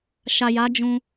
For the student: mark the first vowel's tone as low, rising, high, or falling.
low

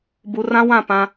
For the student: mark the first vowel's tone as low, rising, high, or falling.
low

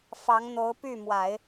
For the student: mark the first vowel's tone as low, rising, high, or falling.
rising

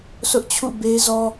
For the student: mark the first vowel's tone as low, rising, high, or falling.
high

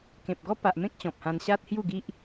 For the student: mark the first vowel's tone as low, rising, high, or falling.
low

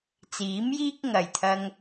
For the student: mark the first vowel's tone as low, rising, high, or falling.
rising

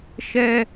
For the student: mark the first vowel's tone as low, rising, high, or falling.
high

